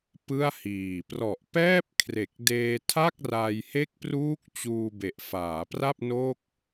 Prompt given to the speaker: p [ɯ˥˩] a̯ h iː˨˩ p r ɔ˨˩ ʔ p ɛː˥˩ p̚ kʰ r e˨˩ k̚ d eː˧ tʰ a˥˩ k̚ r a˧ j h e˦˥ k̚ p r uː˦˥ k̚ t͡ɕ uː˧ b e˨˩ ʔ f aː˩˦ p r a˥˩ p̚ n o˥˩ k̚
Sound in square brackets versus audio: correct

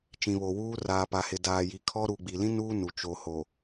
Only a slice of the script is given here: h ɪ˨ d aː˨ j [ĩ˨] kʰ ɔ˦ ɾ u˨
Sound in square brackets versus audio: incorrect: i˨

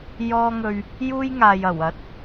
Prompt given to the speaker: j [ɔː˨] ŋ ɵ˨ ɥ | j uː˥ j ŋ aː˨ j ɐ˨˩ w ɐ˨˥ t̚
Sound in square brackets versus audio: incorrect: ɔː˧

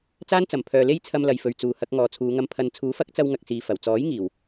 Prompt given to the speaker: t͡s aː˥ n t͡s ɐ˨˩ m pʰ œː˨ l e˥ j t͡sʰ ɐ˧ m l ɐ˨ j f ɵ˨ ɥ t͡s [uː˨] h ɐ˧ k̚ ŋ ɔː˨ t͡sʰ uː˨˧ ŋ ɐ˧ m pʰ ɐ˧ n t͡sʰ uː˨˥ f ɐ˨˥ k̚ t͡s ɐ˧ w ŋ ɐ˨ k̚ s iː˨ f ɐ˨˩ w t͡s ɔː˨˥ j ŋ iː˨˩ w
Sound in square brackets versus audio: correct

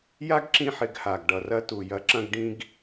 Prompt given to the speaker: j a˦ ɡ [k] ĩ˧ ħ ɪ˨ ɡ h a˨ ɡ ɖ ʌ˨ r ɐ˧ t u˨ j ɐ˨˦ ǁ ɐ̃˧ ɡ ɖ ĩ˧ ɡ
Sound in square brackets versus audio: incorrect: ǁ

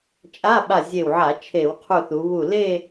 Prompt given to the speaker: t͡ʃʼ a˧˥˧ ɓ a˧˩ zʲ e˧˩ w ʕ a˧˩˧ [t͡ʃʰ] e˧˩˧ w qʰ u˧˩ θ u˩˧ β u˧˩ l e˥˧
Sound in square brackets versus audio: correct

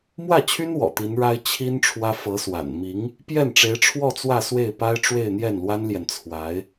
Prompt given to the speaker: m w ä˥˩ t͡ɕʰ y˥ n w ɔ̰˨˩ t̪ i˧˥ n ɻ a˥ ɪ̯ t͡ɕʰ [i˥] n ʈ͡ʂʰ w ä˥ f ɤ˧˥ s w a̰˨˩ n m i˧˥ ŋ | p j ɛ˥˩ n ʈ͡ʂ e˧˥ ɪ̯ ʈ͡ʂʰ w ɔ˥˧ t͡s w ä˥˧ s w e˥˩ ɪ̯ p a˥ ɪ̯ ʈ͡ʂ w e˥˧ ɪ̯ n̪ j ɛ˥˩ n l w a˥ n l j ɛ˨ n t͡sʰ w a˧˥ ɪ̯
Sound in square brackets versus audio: correct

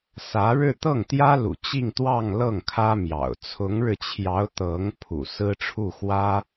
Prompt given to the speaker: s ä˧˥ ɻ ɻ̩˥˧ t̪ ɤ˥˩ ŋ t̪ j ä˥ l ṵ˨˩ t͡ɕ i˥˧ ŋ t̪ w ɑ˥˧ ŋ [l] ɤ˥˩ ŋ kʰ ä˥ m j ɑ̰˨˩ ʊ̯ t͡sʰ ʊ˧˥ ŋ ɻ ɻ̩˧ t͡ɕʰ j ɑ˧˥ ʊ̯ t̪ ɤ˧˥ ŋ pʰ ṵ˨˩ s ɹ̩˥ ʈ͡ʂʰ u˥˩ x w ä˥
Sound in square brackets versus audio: correct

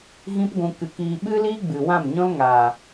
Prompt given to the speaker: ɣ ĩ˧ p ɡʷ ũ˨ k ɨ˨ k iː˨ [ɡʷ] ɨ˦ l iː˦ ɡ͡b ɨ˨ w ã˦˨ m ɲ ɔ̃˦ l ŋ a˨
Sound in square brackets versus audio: incorrect: ɓ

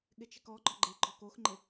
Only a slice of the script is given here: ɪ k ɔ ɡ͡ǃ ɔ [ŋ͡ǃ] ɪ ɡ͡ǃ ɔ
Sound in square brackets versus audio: incorrect: ɡ͡ǃ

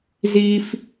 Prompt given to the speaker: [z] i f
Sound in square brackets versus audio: correct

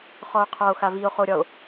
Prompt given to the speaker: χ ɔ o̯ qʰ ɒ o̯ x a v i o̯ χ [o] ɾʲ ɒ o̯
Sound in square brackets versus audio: correct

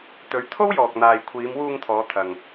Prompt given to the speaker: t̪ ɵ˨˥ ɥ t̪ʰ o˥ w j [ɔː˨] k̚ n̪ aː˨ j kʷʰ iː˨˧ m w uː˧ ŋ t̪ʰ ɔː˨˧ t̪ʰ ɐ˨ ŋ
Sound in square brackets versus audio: correct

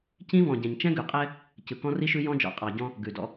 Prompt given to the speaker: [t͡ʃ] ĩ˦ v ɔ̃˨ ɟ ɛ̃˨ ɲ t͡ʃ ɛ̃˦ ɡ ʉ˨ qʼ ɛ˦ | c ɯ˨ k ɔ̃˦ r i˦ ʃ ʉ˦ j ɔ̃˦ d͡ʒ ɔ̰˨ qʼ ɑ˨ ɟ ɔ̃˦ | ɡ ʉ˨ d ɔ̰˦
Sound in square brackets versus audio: incorrect: c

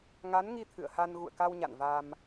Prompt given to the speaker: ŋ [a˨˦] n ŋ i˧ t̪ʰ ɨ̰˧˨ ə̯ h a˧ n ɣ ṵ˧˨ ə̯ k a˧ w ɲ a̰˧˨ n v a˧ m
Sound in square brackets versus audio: correct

